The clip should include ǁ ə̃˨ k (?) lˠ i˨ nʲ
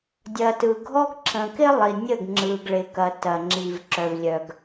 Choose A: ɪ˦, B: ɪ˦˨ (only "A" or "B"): A